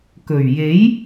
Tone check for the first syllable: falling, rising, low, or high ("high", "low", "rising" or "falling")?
low